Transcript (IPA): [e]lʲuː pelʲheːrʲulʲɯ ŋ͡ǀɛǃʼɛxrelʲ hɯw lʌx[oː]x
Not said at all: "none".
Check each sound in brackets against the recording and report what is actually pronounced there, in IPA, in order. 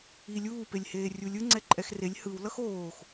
i, oː

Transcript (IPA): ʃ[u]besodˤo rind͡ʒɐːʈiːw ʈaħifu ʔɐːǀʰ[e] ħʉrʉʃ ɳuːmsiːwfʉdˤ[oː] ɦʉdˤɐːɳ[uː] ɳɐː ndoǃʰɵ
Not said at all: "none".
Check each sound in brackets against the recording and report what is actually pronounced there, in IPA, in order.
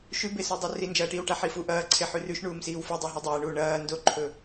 ʉ, e, o, uː

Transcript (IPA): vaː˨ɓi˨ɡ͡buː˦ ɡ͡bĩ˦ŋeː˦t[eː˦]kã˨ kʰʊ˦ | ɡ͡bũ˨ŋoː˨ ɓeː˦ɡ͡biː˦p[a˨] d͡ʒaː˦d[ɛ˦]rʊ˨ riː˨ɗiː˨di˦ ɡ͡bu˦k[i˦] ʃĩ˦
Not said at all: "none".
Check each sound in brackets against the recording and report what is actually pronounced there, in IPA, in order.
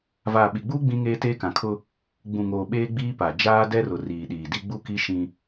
eː˦, a˨, ɛ˦, i˦

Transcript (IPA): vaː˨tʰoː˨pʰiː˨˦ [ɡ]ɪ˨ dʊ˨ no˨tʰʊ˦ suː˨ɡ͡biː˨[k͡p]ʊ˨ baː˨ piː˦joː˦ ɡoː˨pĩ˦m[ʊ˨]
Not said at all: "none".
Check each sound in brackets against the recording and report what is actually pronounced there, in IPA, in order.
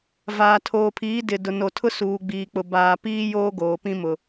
d, k͡p, ʊ˨

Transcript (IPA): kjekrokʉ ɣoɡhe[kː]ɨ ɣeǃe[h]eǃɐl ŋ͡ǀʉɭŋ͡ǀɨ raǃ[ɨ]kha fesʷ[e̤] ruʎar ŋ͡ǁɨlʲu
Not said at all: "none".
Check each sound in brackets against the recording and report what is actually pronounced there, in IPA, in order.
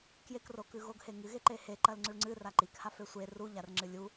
ŋ, h, i, e

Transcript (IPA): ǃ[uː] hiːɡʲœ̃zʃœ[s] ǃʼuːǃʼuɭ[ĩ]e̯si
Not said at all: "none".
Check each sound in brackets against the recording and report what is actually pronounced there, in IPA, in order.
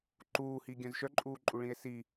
uː, none, ĩ

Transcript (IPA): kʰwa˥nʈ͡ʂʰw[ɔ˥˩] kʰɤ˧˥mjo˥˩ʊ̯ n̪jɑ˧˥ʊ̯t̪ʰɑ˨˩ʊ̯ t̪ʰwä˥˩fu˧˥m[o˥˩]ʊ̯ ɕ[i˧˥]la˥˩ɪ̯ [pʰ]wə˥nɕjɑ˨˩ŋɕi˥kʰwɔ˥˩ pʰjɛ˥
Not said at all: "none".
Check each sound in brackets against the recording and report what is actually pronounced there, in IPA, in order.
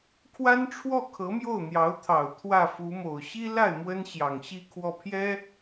ɔ˥˩, o˨˩, i˥, m

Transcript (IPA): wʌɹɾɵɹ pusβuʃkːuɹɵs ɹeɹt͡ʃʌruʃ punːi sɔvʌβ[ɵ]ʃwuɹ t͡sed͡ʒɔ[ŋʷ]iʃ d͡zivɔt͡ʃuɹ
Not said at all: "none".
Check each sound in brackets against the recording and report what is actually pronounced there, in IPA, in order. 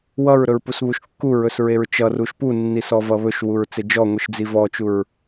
ɵ, ŋʷ

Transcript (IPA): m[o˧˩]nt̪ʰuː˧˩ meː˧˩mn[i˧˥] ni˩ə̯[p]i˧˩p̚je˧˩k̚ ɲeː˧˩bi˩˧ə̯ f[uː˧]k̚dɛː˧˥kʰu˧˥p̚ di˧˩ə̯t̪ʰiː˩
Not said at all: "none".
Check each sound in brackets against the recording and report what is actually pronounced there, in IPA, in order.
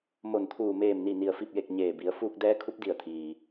o˧˩, i˧˩, f, uː˧

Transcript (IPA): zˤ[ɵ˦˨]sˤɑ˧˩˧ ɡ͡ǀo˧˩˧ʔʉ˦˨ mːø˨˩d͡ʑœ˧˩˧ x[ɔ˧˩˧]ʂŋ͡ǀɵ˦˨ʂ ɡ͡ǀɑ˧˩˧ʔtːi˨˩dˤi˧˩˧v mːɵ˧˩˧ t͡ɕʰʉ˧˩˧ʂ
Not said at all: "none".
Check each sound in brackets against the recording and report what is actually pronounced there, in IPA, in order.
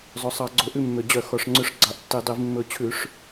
ɵ˨˩, ɔ˨˩

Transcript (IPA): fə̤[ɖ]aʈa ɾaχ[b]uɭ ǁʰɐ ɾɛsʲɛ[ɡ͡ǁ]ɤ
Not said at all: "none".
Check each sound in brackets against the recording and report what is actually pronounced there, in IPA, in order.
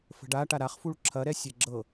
ɖ, f, ɡ͡ǁ

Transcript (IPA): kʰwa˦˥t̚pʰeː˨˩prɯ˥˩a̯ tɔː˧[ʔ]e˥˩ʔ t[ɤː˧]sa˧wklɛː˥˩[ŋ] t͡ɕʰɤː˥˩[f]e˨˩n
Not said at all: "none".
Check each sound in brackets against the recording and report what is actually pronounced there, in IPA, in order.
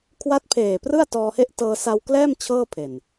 h, ɤː˧, m, pʰ

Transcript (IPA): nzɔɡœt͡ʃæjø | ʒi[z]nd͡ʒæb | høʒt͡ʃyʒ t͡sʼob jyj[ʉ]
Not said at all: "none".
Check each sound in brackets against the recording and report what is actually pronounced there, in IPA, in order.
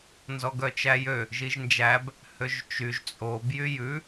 ʒ, ʉ

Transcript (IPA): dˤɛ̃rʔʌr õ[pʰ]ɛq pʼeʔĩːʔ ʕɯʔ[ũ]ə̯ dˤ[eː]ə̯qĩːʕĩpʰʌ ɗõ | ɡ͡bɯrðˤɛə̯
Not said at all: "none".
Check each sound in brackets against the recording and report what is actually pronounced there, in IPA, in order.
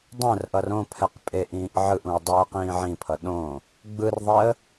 pʰ, ũ, eː

